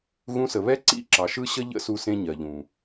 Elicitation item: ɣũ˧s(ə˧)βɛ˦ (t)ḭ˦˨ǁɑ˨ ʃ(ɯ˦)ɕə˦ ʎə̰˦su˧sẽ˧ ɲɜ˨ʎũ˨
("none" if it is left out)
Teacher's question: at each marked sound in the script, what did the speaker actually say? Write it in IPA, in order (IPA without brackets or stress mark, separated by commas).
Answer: ə˨, ǀ, ɯ˦